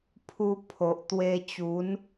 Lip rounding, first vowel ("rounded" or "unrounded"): rounded